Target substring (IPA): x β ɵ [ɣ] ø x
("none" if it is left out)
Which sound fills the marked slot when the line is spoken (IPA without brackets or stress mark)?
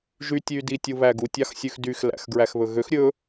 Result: ɣ